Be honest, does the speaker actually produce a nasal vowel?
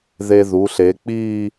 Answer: no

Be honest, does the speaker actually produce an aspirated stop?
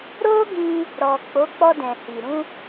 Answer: no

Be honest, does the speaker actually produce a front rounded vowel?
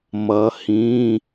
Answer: no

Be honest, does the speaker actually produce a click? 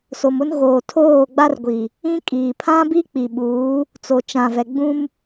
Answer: no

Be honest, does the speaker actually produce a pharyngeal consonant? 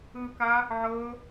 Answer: yes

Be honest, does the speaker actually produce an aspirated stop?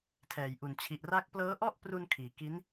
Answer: yes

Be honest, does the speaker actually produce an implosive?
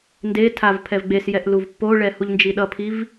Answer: yes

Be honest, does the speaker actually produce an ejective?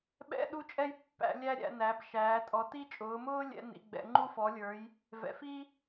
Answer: yes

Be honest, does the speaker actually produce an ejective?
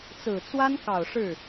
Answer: no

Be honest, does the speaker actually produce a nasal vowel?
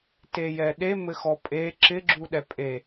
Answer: no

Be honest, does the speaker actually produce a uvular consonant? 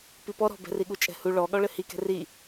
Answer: no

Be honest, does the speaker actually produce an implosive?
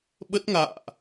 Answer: yes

